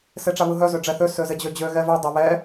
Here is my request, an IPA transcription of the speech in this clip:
s e ʈ͡ʂ a β ɯ ɦ œ z ø ɖ͡ʐ ɛ θ ø s ø z e d͡ʑ ø d͡ʑ ø ɣ ɛ v ø dˤ e β ɛ

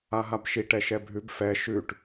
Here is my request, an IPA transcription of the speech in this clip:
a ɦ a b ʃ i ʈ ɛ ʃ ɛ bʱ ʉ b f ɛ ʃ ʉ ʈ

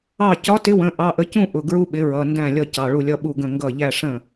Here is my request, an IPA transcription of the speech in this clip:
ɑ˥˩ c ɒ˨˥ t ɪ˨˥ w ə̃˩˧˩ ʔ ɑ˩˧˩ ʔ ə˨˥ c ũ˥˧ ʔ ʊ˩˧˩ ɡ ɹ u˥˧ ɓ ɪ˨˥ ɹ ʌ˩˧˩ n d æ̃˥˩ lʲ ʌ˥˩ c ɑ˩˧˩ ɭ u˥˩ lʲ ʌ˥˧ ɓ u˥˩ ɡ ə̃˥˩ ŋ ɡ ʌ˥˩ ʎ æ˥˧ ʂ ə̃˥˩

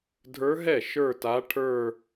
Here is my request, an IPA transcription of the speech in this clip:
dʱ ə˞˧˥ ɦ ɛ˥˩ ʃ ə˞˥˧ t a˧˥ ʈʰ ə˞˥˧

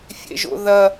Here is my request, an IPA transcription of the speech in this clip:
fʲ ḛ ʒ o̰ ð ɐ

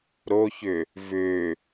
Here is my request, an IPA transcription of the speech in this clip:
ɾ o ç ʏ | v ʏ

